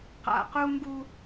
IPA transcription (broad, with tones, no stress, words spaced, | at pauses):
qa̰˨qu˦ ŋɡu˦